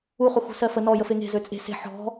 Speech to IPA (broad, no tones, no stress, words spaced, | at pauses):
uχu xṳsɜfə nɔ jəfeŋe̤ zøt͡sʼe̤ se̤ ħɔ̤